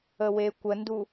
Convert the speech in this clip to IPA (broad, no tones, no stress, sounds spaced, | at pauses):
ə w e kʷ ə n d u